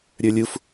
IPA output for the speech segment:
ɾʲ ə˞ lʲ u f

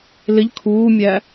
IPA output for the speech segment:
l ɪ ʎ kʰ uː mʲ æ

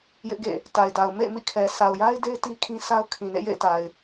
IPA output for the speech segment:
j ɪ˦ ʔ ɡ ḛ˦˨ | t a˨ ɪ̯ d a˨ ʊ̯ m ḛ˦˨ ɪ̯ m ḭ˦˨ kʰ ɛ˨ s a˨ ʊ̯ j a˦ ɪ̯ d e˦ ɪ̯ t i˦ kʰ ĩ˦ s a˦ ʊ̯ kʰ ĩ˨ n ḛ˦˨ j ḛ˦˨ ɪ̯ t a˨ ɪ̯

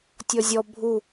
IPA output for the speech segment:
tʲ ɔ zʲ ɔ bʱ u

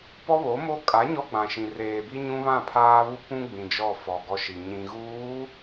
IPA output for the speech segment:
p ɔ˦ β o˨˦ m o˦ kʼ a˨˦ ɲ ɔ˦ ɡ͡b ã˨ ʃ ĩ˨ r eː˨ b i˦ ɲ ũ˦ β ã˦˨ pʰ aː˦ β u˦ p ũ˦ ɡ͡b ĩ˨ d͡ʒ ɔ˦˨ f ɔ˨ ɡ ɔ˦ ʃ i˨ ɲ ĩ˨ ɣ uː˨˦

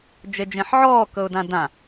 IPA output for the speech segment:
d͡ʒ e d͡ʒ ẽ ħ ʕ ɔː k ɤ ʊ̯ d ã d ã

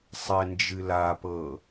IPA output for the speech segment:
sˤ ɛ n d͡ʒ ɨ l a p ɤ

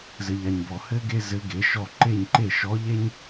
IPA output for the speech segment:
z ɘ˨ ʎ a˨ ɲ b ɔ˨ h ɘ˥ ɡ e˥ z ɘ˧˥ ɡ e˩˥ ʃ ɔ˥˨ ǃ e˥˨ ɲ ǃ e˥˨ ʃ ɔ˧˥ ʎ e˥ ɲ

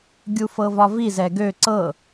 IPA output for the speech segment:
ɡʲ u f ɤ v ɒ v i z ɛ ɡ ø ǀ ɤ

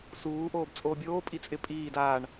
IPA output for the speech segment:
s uː ʔ oː b t͡sʼ oː bʲ oː pʼ i t͡sʼ ɪ pʼ iː d aː ɳ

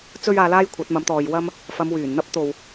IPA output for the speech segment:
t͡s ɵ˥ ɥ aː˧ l aː˥ j kʷʰ ɐ˨˥ t̚ m ɐ˨˥ m t̪ ɔː˨ j w ɐ˥ m | f ɐ˨˧ m w yː˨˩ n n̪ ɐ˥ p̚ t̪ o˨ w

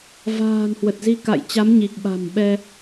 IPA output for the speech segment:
v a̤ː˨˩ n h w ə˨˩ t̚ z i˧ k a̰˧˨ j t͡ɕ a˨˦ m ɲ i˨˩ k̚ ɓ a̤˨˩ m ɓ ɛ˧

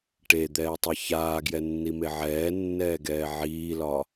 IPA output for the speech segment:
ʈ e d̪ ɛː tˤ e ç aː ɡ j ɛ nː i m e ʕ ɛː nː ɛː ɡ ɛː ʕ iː l ɒ

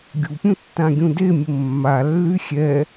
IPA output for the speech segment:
ɡʲ u pʲ ũ tː ã ɡʲ ũ d e mʲ ə mː a lː y xʲ ɛ

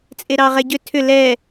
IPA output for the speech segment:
t͡sʼ e ɾ ɑ ʁ ɛ ɟ ʏ tʰ ʏ l ɛ

